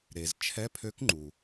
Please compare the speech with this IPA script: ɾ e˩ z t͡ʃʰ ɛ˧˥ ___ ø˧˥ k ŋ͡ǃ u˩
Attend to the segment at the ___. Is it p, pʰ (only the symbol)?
pʰ